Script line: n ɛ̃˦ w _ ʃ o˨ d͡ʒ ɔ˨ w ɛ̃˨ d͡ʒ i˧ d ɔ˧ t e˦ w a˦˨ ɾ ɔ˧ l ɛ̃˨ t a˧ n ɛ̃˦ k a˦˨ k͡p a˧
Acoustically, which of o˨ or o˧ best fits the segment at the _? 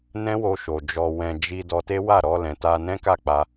o˧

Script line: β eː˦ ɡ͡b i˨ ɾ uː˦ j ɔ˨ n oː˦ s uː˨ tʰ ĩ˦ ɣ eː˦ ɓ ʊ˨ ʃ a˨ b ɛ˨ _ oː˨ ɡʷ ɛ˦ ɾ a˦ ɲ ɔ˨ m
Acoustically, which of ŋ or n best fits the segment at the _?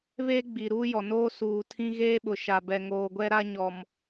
ŋ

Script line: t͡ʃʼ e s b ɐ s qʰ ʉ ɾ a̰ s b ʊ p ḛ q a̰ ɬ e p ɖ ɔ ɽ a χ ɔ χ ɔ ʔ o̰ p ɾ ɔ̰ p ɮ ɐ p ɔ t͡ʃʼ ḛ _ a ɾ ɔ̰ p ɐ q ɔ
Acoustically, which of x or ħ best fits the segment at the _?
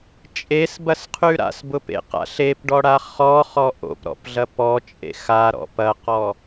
x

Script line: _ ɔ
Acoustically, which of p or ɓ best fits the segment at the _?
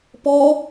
p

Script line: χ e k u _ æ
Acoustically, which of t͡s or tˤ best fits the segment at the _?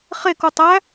tˤ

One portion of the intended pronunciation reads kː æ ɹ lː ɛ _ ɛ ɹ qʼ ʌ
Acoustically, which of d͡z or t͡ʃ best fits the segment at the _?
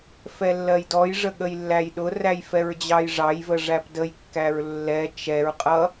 t͡ʃ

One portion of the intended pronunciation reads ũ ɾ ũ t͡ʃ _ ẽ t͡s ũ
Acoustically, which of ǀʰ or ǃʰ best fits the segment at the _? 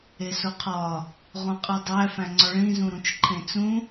ǃʰ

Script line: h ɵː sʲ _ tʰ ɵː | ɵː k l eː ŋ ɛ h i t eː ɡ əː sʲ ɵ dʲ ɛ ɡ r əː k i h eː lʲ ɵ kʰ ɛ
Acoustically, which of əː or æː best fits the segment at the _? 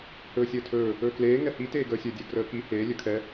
əː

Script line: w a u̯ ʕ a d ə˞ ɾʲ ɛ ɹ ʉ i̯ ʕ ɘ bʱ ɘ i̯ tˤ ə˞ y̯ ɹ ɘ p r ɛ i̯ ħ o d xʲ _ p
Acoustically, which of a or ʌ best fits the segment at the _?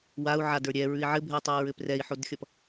ʌ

